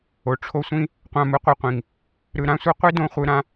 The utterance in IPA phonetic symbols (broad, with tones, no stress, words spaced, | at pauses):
o˨ʈ͡ʂʰo˦sʷĩ˦ | qʷã˧mɯ˧qʷɯ˧qʷĩ˨ŋ | ɾɯ˧ɾã˦sʷɯ˦ qʷi˦ dõ˦χʷɯ˧ɾã˦